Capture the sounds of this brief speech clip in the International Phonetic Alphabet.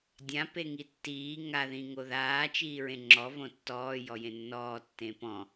dʲ ã p e ŋ i tː iː ŋ a ð ĩ ŋ o ð aː t͡ʃ iː ɹ ẽ ŋ͡ǁ ɔ v õ tː ɔː j ɔ j ẽ nː ɔː tː ẽ p ɔ̃

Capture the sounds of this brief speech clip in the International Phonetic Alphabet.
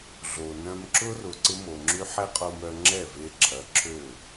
ɮ o˨ n œ̃˧ m ǁ ʊ˦ r ʊ˨ ǀ ɪ˦ m o˨ ŋ͡ǁ y˦ ħ ɛ˦ qʼ o˧ m œ˧ ŋ͡ǁ ɛ˦˨ v e˧ ǁʰ ɐ˨˦ ǁʰ ø˦˨

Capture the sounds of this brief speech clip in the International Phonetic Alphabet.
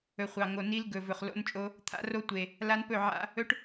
ɵ˨ χʷ ɑ˨ ŋ o˨ n i˦ l ɡ ɵ˨ v ɵ˨ χ l o̰˦ n t͡ʃʼ o˦ | t̪ʰ a̰˦ r o˦ tʷ e˨ | l a˦ n p ɵ˦˨ ʕ a̰˦ | ɵ˦ ʈ

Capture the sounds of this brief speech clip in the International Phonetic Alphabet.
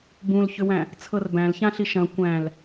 b ũ l ç ʏ w æ̃ | t͡sʰ ɤ r b æ̃ l ç ã ɬ i ʃ ɐ̃ kʷ æ̃ l

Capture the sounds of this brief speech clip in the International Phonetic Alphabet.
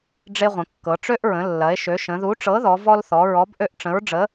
ɖ͡ʐ e˦ ʁʷ ə̃˩˧ kː ɤ˩˧ ʈ͡ʂ ø˦ ʔ ɹ ə̃˩˧ lː ɐ˩˧ e̯ ʃ ø˩˧ ʃ ə̃˩˧ ð u˨˥ ʈ͡ʂ ɤ˨˥ ð ɔ˩˧ v ɔ˦ l θ ɔ˩˧ ɹ ɔ˨˥ b ʔ ø˦ ʔ ʈ͡ʂ ə̃˨˥ ɹ ɖ͡ʐ ə˨˥

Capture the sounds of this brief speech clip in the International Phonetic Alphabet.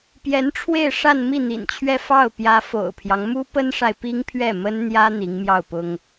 p j ɛ˧˥ n ʈ͡ʂʰ w e˥˧ ɪ̯ ʂ a˥˧ n m i˥˩ n̪ ḭ˨˩ n t͡ɕʰ ɥ ɛ˥˧ f ɑ˥˩ ʊ̯ p j ä˧˥ f o̰˨˩ ʊ̯ pʰ j ɑ˦ ŋ m u˥ p ə˥ n ʂ a˨ ɪ̯ p i˥ ŋ pʰ ɥ ɛ˥˩ m ə˥ n n̪ j ä˥ n̪ i˧˥ ŋ m j ɑ˥˩ ʊ̯ p ʊ˥ ŋ

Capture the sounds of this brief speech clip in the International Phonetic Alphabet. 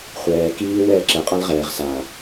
χʷ ɛː k iː w ɛː ǁ ɛ qʼ a l ʁ ɛː ʁ s a

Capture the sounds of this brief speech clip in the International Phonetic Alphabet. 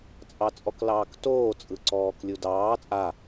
t͡sʼ ɑ t͡sʼ ɔ k l ɑː k t oː t͡sʼ ɯ ǀ ɔː k lʲ u d ɑː t͡sʼ a

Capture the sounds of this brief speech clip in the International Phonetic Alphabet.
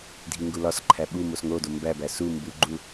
dʱ i ŋ ɡ u l ɒ s ǃʰ æ ɓ u m o s ŋ o d o m b æ b æ s u m b u ɡ͡ǃ u

